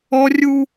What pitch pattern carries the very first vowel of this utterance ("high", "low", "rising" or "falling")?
high